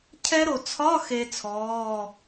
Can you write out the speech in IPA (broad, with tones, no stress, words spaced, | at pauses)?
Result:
cʰɛ˦˥ɾo˨ t͡sʰɒ˧˥˧ xe˦˥t͡sʰɔː˧˥˧